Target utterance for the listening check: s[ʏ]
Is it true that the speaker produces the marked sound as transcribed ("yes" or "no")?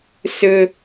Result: yes